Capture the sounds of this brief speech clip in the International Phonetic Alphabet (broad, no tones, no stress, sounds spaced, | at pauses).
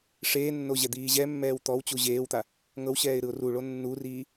ʂ eː nː o ʑ ɛ d̪ iː ʑ ɛ mː ɛː w t̪ ɔ w t͡ɕ u ʑ eː w t̪ a | ŋ ɤ w ɕ ɛː ɪ̯ ɾ ɯ ʊ̯ r u ɭ o nː u r iː